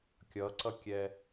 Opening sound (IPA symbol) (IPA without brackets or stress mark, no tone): kʲ